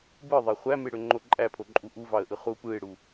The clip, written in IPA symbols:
bɯðˤæ χʷæmeɽøŋ͡ǃo ǃʼæpʰoǃʼu ʔuvɑə̯ʔɯ χu pɯɪ̯ɽu

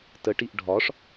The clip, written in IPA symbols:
təʈiʔ ɖʱɒʂ

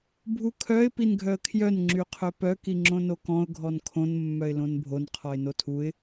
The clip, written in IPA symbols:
bʱukʰœɪ̯ pinɡʱœə̯kʰjœn ŋ͡ǁyqʰœpœ kiŋ͡ǁõnokɔ̃ʊ̯ ɡʱɔnkʰõn mːœɪ̯lõnbʱon qʰɔɪ̯notʰuɪ̯

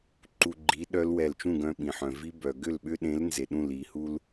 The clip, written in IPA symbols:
ǃu˧ɡ͡ǃi˨˥ ɗœ˦˥lwɛ˧˩l t͡ʃũ˥˨ɡœ̃˧ɓĩ˩ħœ̃˩ vi˦˥ bœ˩ ɡʏ˥˨lɓʏ˦˥ɗẽ˨˥l nze˩ɗũ˧˩li˩hu˧l

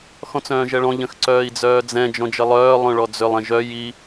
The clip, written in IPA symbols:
xɔ̃t͡sœ̃ːʒɛɭɔ̃ ʎə̃xǀœːi̯d͡zœːd͡zɛ̃ d͡ʒɔ̃d͡ʒəlˠœː lˠœ̃ɭɔd͡zʏlˠ ɛ̃ʒœ ji

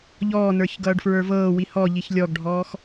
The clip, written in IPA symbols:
ʎɔːnə˞ç ɡʌːɖfɹə˞vɤːwi hɔʎiç lʲɔɡɖʱɔːx

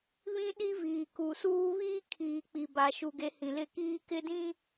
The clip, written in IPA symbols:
βĩ˦ɗi˦viː˨ ku˨suː˦ βiː˦kʰiː˨ k͡pi˨ba˨ ʃu˨ɡe˨˦ hĩ˨lɪ˦˨kiː˦ kɪ˦dĩ˦

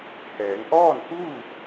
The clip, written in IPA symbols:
hɛː˩˧ŋʔɔː˥˨nkuː˥˨

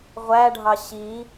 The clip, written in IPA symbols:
ʁʷæɖʱɑ ɕi

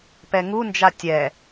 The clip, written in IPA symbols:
pɛŋund͡ʒa tʲɛ

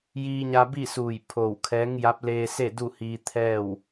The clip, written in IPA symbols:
jiː˧ɲa˧bi˥˨suː˧˩j pʰo˧˩wkʰɛː˧˥ŋ ja˧˥p̚leː˧ se˥˨du˥˨hiː˧ t̪ʰɛː˥˨w

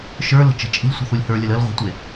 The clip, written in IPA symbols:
ʃə˞lə̤ t͡ʃə̤t͡ʃʼi̤lʲ sʷə̤θulʲhə˞lʲəl əl ʁʷə̤tʷe

